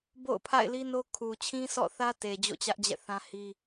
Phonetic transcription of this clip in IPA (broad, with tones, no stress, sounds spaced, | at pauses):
b o̰˦˨ ʊ̯ pʰ a̰˦˨ ɪ̯ l i˦ n o˦ kʰ u˨ t͡ɕʰ ĩ˦ s ɔ̰˦˨ θ ä˦ t e˨ d͡ʑ o̰˦˨ t͡ɕ ä˦ ʔ d͡ʑ ɛ̰˦˨ θ ã˦ h i˦